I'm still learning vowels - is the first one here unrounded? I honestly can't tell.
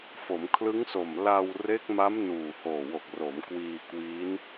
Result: no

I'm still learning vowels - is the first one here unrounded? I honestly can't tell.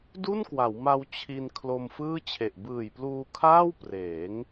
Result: no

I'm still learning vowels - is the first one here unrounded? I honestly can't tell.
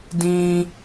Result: yes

